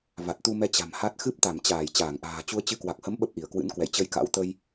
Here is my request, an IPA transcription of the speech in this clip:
v a˨˩ t̚ t̪ u˧ m ɛ˧ t͡ɕ a̤˨˩ m h a˦˥ t̚ x ɨ˦˥ p̚ t̪ a˧˩ m t͡ɕ aː˧˩ j t͡ɕ aː˧˩ ŋ ʔ a̤ː˨˩ t͡ɕ u˧ ə̯ t͡ɕ ɨ˨˦ k w a˨˩ k̚ h ə˨˦ m ɓ ə˦˥ p̚ ʔ i˧˩ ə̯ k w ɨ̰˧˥ n k w ɛ̰˧˨ j t͡ɕ ə˧ j k a̰˧˥ w t̪ ə˧ j

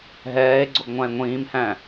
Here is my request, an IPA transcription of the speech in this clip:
ɦ ɛː e̯ ɡ͡ǀ o ɡ ŋʷ ã e̯ ŋʷ ĩː m h æ̃

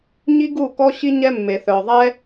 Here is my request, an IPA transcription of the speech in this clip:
ɲ i˦ ɡ u˦˨ k ɔ˦ ɕ i˦ ɲ ɛ˦ mː e˨ θ œ˨ ðˤ ɛ˦

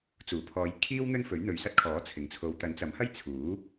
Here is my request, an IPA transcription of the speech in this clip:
t͡s uː˨˩ pʰ ɔː˨˧ j kʰ iː˥ w n̪ ɵ˥ n f ɵ˨˥ ɥ n̪ ɵ˨ ɥ s ɐ˥ t̚ kʰ ɔː˨˥ t͡sʰ ɪ˨˩ ŋ t͡sʰ o˨˧ w t̪ ɐ˨˥ n t͡s ɐ˨˥ m h ɐ˥ j t͡sʰ uː˨˥

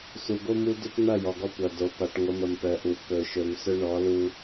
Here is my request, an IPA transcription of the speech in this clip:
s u˨ ɡ o˦ m u˦ d ʏ˦ p n̪ ʌ˦˨ j ɔ˨ ɡ ɔ˦ kʷ ʌ˨ d o˨ p a˨ ʈ ŋʷ ə˨˦ m ə˨ m p œ˨ ʔ u˨ k ɵ˨ ʃ ɵ˨ m s ɵ˦ ɳ ɔ˨˦ l u˦

